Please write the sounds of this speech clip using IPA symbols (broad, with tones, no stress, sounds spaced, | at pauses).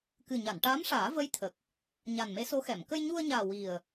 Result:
k ɨ˨˩ ɲ a˨˩˨ n ʈ aː˧˥ m ʂ aː˨˩˦ v ə˧˥ j t̪ʰ ə˨˩ k̚ | ɲ a˨˩ n m e˧˥ s o˧˥ x ɛ˨˩˨ m k ə˧ j ɲ u˧ ə̯ ɲ aː˨˩ w i˨˩ ə̯